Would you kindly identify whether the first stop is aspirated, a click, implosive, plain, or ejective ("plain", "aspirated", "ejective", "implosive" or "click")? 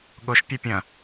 implosive